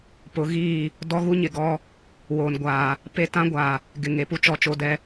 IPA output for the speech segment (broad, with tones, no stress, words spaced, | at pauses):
pʊ˨˦ɣiː˦˨ | dɔ˦ɣu˦ɲɪ˨ ɡɔ˦ | woː˨nɡʷaː˨ | pe˦tã˦ɡʷaː˨ | ɡɪ˨ŋe˨ pu˦t͡ʃɔ˨t͡ʃo˨dɛ˨